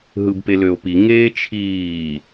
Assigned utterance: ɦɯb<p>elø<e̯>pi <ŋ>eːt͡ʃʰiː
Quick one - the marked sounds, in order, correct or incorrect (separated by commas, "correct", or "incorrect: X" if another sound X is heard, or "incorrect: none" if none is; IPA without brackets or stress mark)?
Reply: correct, incorrect: o̯, correct